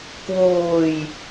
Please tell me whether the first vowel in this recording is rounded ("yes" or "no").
yes